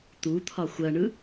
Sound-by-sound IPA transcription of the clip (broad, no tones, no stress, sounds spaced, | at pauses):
t̪ u t̪ʰ ɒ xʷ ɜ ɳ ɯ